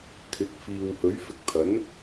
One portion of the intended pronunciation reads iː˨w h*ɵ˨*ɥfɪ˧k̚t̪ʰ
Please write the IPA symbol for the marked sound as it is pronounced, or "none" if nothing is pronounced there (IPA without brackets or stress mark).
ɵ˨˥